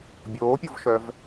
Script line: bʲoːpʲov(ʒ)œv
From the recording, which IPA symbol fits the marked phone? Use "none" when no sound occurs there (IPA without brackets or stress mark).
ʃ